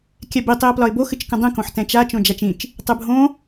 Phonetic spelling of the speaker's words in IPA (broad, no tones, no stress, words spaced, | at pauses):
kʲɛbi tˤiə̯plɒɪ̯bo xɨt͡ʃkə̃dˤĩ kõħtɛ̃t͡ʃa t͡ʃõd͡ʒat͡ʃĩt͡ʃ | tˤɨbʱõ